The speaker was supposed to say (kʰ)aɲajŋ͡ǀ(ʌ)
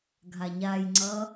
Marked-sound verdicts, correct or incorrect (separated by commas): incorrect, correct